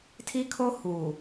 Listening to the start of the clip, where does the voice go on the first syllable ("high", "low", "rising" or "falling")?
high